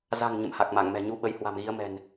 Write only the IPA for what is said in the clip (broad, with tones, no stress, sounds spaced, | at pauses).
z a̤˨˩ ŋ ɲ ə̰˧˨ m h a˨˩ k̚ m a˧˩ ŋ m ɛ̤˨˩ ɲ u˨˦ ɓ ə˨˦ j h w a̤˨˩ m ɣ i˨˦ ə̯ m ɛ̤˨˩ n